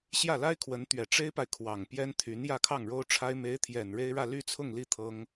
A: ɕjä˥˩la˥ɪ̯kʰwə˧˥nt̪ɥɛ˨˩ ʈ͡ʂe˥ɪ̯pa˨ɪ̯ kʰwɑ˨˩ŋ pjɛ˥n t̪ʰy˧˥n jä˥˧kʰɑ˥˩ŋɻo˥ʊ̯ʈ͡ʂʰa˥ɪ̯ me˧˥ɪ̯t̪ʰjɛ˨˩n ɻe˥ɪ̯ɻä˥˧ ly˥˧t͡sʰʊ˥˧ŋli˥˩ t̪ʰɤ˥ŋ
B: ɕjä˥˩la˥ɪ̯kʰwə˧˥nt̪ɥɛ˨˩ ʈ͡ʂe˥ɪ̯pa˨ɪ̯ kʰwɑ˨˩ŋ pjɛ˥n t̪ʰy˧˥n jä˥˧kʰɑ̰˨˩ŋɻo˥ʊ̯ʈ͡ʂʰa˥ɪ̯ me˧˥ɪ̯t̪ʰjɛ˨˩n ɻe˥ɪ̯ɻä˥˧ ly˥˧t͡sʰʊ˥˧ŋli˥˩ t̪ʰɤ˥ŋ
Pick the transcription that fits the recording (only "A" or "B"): A